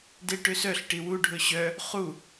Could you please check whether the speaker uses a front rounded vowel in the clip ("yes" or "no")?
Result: yes